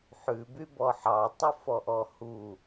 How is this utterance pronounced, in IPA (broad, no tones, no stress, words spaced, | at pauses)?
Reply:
ħʉ bybɔħɑ tˤufɔʔɔhu